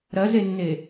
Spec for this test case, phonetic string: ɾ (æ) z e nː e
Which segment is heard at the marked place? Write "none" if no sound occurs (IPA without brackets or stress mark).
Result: ɐ